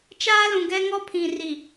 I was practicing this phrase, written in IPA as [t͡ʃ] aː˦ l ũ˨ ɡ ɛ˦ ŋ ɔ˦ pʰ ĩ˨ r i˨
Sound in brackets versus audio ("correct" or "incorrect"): correct